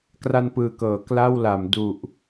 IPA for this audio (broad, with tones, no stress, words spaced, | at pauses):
kra˧npɯː˨˩kɤː˩˦ kla˥˩wla˩˦m du˨˩ʔ